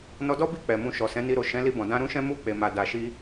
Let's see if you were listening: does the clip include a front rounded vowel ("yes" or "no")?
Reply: no